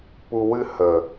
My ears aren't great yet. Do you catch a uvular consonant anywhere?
no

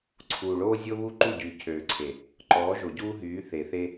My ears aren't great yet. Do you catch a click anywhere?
yes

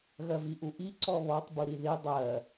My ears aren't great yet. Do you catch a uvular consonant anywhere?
no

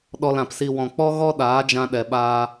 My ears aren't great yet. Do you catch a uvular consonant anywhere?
no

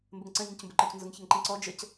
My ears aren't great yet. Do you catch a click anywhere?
yes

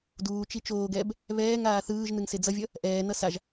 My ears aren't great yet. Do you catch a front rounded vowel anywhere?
no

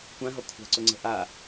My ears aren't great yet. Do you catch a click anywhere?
yes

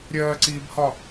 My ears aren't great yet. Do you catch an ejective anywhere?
no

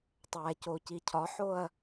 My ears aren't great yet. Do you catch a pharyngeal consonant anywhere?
yes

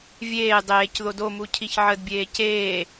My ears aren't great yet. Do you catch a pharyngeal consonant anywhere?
yes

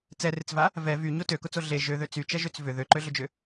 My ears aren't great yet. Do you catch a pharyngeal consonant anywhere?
no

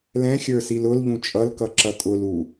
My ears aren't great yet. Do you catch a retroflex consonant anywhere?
no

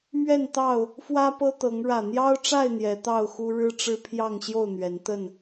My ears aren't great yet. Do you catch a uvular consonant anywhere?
no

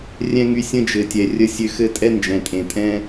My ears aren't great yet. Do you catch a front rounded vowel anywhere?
yes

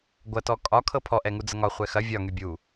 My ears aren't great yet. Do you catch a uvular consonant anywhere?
yes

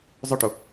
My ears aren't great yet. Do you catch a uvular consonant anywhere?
no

